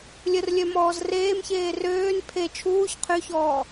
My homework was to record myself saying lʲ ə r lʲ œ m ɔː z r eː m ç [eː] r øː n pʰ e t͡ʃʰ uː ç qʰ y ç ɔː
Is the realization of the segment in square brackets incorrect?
no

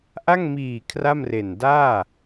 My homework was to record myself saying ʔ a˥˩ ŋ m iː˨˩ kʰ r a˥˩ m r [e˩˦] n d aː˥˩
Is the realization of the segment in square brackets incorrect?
yes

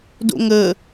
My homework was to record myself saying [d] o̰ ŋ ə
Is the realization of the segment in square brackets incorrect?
no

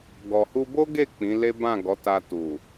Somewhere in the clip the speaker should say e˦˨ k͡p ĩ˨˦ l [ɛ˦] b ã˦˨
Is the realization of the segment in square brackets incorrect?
yes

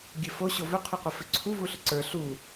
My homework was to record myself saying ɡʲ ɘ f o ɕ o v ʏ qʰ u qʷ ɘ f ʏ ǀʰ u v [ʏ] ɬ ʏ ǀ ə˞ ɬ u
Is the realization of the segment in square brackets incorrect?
yes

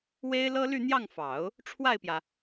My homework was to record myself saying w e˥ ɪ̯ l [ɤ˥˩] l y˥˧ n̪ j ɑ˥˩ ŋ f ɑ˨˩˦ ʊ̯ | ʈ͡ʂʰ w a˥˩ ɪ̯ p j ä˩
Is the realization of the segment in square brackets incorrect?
yes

